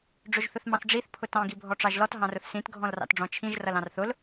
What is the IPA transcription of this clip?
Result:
ɖ͡ʐ ʊ ʒ θ ʊ θ m ɑ̃ θ ɖ͡ʐ i θ pʰ ʊ t ɑ̃ ɡ i bʱ ɔ ʈ͡ʂ ɑ ʒ l ɔ t ɦ ɑ̃ r ʊ θ s ĩ t ɡʱ ɔ̃ l r ɑ̰ t ɖ͡ʐ ɔ̃ t͡ʃʰ ĩ ʒ r ʌ l ɑ̃ r θ ʊ l

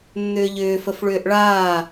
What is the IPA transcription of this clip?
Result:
nː ʏː ʎ ʏː f ə f ɭ ʏː ʔ ɭ aː

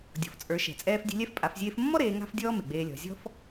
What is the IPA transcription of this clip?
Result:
dʲ ɔ̤˩˧ f t͡sʼ ə˞˩˧ ʃ ɛ̤˩ t͡sʼ ɛː˧ f dʲ e̤˧ lʲ ɛ˧˥ f pʼ a˩˧ f zʲ eː˧ f mː ɔ˥ ɾ eː˩˧ ŋ a̤˥ f dʲ ɔː˥ m e˩ ɡ͡b eː˧ lʲ ɔ̤˩˧ zʲ ɔ̤˥ f

